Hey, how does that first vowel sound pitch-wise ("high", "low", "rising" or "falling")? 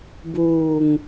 low